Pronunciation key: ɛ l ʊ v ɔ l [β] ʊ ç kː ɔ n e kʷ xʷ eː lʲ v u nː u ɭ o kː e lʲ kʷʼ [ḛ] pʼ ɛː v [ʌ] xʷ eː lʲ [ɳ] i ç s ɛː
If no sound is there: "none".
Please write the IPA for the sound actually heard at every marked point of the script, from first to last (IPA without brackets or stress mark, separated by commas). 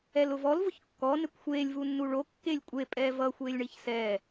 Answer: v, e, ʌ, ɳ